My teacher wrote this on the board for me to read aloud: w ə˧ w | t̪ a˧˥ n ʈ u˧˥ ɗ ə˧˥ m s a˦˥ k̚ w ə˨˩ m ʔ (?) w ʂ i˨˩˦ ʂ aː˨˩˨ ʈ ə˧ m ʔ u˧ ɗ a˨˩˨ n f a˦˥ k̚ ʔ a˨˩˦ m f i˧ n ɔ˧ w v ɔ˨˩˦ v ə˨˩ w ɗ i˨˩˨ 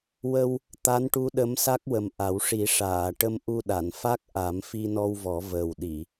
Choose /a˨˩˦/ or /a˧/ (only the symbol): a˨˩˦